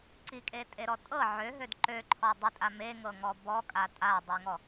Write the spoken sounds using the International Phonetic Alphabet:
ǀ i kʼ e tʼ e ɾ ɔ tʼ ɤ ʕ ø ɦ ø d ǃ ø ǃʰ ɔ dˤ i tʼ a m e ŋ ɤ ŋ ɔ b ɔ kʼ a tʼ a dˤ i ŋ ɔ

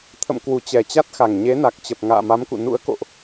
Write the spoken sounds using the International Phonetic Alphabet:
t̪ʰ ə̰˧˨ m k w u˧˩ t͡ɕ ɛ˨˩ t͡ɕ a˦˥ t̚ x a˨˩ ŋ ɲ e˨˦ n a˨˩ k̚ t͡ɕ ə˨˩ p̚ ŋ a̰ː˧˨ m a˨˦ m k ṵ˧˨ n ṵ˧˥ ə̯ k o̰˧˨ ʔ

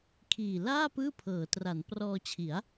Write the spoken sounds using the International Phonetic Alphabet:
kʰ iː˨˩ l aː˥˩ p ɯː˥˩ pʰ ɤː˩˦ t r a˩˦ n p r ɔː˧ t͡ɕʰ i˩˦ a̯

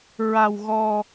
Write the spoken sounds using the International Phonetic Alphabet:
ɹ a˧ w ɣ ɔ˧

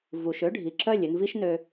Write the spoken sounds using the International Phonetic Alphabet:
v u˨ ʃ ø˦ ɖʱ i˨ ǁ œ˦˨ lʲ ʏ˧ n v i˦ ʃ n ø˧

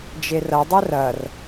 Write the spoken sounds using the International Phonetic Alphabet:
d͡ʒ e r ɐ dˤ ɛ r ɐ r

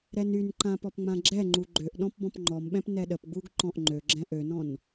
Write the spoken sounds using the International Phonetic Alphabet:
ɾ ɛ n y n ǃ ã p ɔ p ŋ͡m ã ɡ͡ǁ ɛ ŋ͡ǃ u ɡ͡ǃ ø ʔ ɗ ɔ̃ p b ɔ̃ p ŋ͡ǃ ɔ m ɓ ɛ̃ p n ɛ ɗ ə p ɡ͡b u ɡ ǃ ɔ̃ ʔ ŋ͡ǃ ø ɡ͡ǁ ɛ̃ ʔ ø n ɔ̃ n

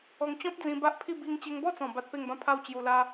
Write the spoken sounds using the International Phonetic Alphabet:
ɔ˧ ŋ t͡ɕ ɔ̃˦ p̚ d͡z ĩ˧ b a˦ ʔ pʰ i˥˧ b i˧ ŋ t͡ɕ e˧ ŋ b ɔ˥˧ t͡s ɔ̃˨˩ b a˦ t̚ p e˥˧ ŋ b ã˥˧ pʰ a˥˧ w t͡ɕ j u˧ l a˦

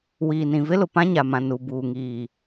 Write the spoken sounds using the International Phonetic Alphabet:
w iː˨ n ĩ˨ v ɪ˦ l ʊ˨ p ã˦ ɲ a˨ m ã˨ n u˨ b uː˨ ŋ iː˨

